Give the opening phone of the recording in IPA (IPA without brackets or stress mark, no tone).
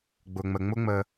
ɡ͡b